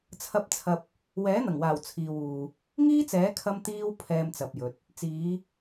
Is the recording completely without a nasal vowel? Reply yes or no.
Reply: yes